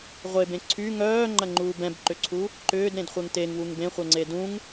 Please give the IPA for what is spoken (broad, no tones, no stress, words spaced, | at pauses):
ʁʷebẽ ǀʰy ŋœːŋ͡ǃɐŋ͡ǃuːb ɛ̃bǃʏǀʰu | ǃʏːdɾẽdχʷeŋ teŋwuŋ bẽχʷɛŋ͡ǀe dũŋ